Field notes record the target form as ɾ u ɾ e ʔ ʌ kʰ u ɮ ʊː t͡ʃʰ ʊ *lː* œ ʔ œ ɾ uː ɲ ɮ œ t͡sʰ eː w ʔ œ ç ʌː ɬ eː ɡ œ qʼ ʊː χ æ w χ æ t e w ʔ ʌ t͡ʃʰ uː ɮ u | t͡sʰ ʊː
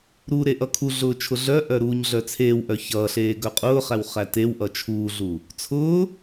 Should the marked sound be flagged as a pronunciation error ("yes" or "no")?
yes